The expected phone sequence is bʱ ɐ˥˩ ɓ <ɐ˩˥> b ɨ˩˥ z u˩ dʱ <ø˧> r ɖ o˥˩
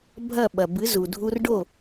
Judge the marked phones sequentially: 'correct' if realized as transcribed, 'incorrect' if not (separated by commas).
incorrect, incorrect